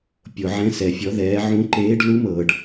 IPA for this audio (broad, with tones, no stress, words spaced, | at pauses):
pʲo˨ʕɛ̃˧˥ sɛ˨fʲɔ˧˥ðɛː˧˥ ʕũ˧˥ǃeː˧˥ɖ lu˧˥mɤː˨ɖ